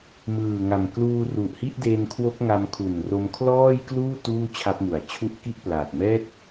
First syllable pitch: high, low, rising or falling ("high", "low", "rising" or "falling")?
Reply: low